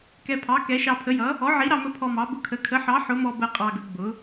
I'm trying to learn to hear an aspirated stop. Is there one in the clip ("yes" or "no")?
yes